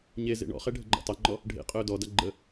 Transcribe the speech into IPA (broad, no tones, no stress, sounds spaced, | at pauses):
ɲ e z ḛ ɳ ɔ̰ χ ɛ ɖʱ ə ɡ͡ǃ ɔ̰ tˤ e ŋ͡ǃ ɔ | ɖʱ ḛ qʼ ɵː d ɔ d a ɡ͡ǃ ə